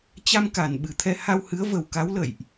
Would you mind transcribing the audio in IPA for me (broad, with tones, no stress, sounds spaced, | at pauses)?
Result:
t͡ɕ a˧ m k a˨˩ n ɓ ɨ˨˩ t̪ʰ ɛ˧ h a˧ w h ɨ˨˦ ə̯ v ə˨˩ w k a˨˦ w l ə̰˧˨ j ʔ